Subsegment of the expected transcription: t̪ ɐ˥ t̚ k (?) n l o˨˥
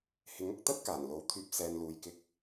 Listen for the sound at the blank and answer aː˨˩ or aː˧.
aː˨˩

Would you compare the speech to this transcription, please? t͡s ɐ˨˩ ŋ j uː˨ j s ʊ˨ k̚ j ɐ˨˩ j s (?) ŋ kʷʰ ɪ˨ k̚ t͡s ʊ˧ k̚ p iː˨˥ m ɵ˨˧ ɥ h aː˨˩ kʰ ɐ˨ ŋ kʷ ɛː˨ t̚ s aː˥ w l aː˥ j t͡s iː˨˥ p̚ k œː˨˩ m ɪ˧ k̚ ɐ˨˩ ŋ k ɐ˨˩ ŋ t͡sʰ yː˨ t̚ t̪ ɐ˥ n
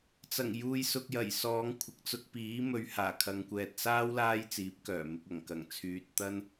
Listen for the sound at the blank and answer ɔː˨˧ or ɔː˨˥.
ɔː˨˧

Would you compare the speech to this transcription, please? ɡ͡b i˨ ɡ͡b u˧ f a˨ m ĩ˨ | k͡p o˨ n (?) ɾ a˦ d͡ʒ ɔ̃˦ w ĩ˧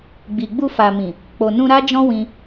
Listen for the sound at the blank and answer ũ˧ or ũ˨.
ũ˧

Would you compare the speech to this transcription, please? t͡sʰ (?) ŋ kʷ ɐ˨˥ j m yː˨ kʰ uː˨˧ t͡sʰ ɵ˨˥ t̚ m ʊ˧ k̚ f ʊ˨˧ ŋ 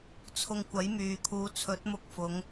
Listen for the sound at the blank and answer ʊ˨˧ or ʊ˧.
ʊ˧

